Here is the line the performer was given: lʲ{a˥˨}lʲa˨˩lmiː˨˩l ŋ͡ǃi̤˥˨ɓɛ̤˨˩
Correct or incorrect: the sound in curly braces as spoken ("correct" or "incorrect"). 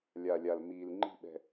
incorrect